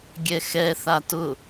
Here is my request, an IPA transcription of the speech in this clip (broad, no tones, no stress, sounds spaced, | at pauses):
ɡʲ ɛ x ɛ θ a t ʊ